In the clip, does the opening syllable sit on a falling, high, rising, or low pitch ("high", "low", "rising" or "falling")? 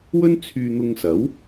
high